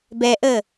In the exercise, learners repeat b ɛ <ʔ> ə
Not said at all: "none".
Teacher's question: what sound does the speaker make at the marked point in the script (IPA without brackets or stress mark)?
ʔ